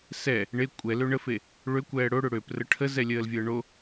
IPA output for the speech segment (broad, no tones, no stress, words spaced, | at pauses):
sɛ | ɳe kʷʼɛlø ɳəfe | ɭøkʷɛː ɽoɽø ɽøprə ʈʰəzɛlʲəːlvʲəː ɳo